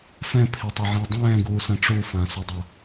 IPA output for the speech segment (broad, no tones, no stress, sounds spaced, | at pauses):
f ɛ̃ pʰ e tˤ ɐ ʕ ɛ̃ ʊ̯ dˤ ɛ̃ː ɡ uː s ɐ̃ ʈ͡ʂ u f ã s ɵ dˤ a